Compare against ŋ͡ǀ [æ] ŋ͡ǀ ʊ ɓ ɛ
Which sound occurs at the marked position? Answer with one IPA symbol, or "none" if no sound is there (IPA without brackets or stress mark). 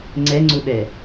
ɛ